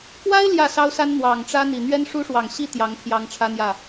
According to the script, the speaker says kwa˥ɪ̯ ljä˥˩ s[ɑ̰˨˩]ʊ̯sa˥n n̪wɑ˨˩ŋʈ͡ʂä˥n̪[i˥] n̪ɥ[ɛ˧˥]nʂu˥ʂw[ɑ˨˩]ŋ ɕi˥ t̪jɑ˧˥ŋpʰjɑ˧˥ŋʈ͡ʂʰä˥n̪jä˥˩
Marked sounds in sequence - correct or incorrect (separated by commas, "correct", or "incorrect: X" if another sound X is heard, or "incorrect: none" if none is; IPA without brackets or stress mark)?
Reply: incorrect: ɑ˥, incorrect: i˨˩, incorrect: ɛ˥, correct